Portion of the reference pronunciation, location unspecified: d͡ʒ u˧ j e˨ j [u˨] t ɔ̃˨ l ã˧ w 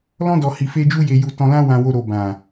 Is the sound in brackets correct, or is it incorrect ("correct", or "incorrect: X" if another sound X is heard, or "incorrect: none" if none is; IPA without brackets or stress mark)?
correct